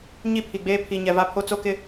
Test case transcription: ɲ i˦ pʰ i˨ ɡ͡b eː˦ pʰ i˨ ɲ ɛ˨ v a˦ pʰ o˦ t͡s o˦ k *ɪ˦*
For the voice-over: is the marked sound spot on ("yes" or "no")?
yes